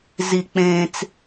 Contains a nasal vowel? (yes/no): yes